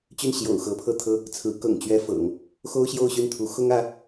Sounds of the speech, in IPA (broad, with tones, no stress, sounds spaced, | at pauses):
t͡ɕ y˥˩ n ɕ j o̰˨˩ ʊ̯ x ɤ˧˥ pʰ ɤ˥˩ t̪ʰ ɤ˥ | t͡sʰ ɹ̩˧˥ k ɤ̰˨˩ ŋ t͡ɕ ɥ ɛ˥ f ɤ̰˨˩˦ ŋ | x o˥ ʊ̯ ɕ j o˥˧ ʊ̯ ɕ y˥˩ n t̪ʰ u˧˥ x ʊ˥ ŋ ä˧˥